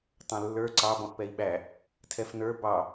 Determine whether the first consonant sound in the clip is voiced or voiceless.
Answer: voiceless